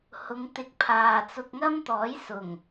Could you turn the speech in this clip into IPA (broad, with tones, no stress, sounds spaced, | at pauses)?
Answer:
h ʊ˨˧ ŋ t̪ ɪ˧ k̚ pʰ aː˨ t͡s ʊ˧ k̚ ŋ ɐ˥ m t̪ ɔː˨˥ j s ʊ˨˩ ŋ